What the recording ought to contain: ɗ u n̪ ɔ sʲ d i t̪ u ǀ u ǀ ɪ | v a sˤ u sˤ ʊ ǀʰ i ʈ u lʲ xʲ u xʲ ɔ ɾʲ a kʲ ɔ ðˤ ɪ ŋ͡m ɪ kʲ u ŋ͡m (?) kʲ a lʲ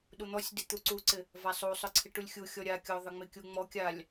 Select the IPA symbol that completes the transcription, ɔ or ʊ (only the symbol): ɔ